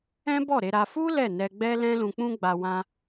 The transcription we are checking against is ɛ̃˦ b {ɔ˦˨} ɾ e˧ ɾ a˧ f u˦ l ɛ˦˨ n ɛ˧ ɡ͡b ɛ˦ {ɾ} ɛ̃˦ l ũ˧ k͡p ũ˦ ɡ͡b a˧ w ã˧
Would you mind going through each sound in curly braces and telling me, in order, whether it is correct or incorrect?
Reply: correct, incorrect

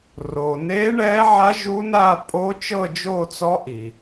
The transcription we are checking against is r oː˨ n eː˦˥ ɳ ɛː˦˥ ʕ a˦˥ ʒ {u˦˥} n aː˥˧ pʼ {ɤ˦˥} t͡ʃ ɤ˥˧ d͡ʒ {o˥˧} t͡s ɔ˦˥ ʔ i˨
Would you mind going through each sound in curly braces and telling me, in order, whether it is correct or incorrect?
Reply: correct, incorrect, correct

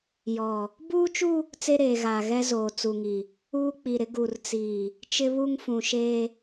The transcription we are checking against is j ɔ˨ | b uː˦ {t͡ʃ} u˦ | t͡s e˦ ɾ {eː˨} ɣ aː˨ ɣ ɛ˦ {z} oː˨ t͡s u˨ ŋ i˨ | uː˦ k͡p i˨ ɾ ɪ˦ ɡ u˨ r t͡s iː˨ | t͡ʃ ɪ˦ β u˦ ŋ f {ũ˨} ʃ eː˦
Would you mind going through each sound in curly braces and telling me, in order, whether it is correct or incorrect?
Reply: correct, correct, correct, correct

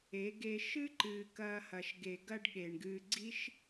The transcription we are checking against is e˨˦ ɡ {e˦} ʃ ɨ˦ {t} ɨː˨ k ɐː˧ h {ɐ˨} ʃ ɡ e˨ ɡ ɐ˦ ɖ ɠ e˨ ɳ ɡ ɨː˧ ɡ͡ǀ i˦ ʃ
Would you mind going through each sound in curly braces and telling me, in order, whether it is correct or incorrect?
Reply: incorrect, incorrect, correct

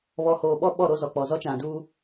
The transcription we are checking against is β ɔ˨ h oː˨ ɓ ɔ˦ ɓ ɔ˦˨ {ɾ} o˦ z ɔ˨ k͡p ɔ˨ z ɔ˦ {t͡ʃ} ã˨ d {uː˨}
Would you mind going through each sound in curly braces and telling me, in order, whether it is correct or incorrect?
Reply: correct, correct, incorrect

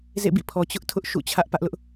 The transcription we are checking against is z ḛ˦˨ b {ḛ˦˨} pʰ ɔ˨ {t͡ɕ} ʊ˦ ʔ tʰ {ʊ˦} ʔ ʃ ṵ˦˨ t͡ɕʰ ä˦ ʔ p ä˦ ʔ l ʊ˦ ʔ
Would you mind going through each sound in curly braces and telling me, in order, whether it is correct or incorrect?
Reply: incorrect, correct, correct

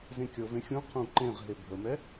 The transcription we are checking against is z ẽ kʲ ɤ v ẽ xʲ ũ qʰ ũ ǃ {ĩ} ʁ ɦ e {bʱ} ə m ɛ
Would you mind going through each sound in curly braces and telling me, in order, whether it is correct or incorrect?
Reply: incorrect, correct

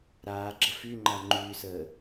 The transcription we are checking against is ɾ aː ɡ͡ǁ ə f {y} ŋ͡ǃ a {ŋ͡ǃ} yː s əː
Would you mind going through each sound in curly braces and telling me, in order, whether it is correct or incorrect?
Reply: correct, correct

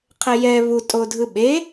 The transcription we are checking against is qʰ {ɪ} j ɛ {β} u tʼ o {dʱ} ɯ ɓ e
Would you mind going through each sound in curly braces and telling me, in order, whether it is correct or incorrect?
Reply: incorrect, correct, correct

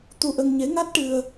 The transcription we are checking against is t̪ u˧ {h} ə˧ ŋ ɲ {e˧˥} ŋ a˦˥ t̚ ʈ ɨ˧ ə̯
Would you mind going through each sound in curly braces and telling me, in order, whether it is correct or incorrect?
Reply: incorrect, correct

